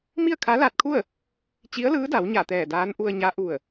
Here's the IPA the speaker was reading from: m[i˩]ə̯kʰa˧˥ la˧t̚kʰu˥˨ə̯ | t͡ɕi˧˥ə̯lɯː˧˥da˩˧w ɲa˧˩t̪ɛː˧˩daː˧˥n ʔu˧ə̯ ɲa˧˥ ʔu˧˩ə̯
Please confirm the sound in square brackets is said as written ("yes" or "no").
no